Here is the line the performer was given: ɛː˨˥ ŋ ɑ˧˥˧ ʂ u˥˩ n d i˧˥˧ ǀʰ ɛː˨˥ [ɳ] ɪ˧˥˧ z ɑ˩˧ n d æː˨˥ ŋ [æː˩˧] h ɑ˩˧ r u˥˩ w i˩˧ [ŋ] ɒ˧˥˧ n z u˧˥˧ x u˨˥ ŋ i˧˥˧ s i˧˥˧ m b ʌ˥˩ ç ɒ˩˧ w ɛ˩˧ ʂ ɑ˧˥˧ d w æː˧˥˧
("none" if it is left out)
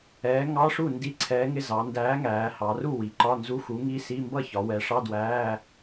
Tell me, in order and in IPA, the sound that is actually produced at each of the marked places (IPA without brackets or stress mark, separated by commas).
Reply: ŋ, æː˩˧, ǃ